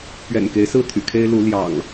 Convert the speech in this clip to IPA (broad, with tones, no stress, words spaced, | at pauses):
pɥɛ̰˨˩nke˨˦ɪ̯sɹ̩˦ t̪ʰy̰˨˩kʰe˦ɪ̯ lu˨˦ ljɑ̰˨˩ŋ